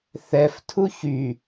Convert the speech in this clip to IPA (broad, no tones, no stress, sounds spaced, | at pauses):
θ ɛ f tʰ u ç y